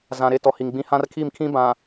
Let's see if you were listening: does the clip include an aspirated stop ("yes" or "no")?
yes